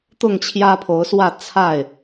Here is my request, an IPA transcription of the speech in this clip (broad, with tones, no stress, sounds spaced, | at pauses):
t̪ ʊ˥˨ ŋ t͡ɕʰ j ä˦ pʰ o˨˦ ʊ̯ s w ä˥˨ t͡sʰ a˥˨ ɪ̯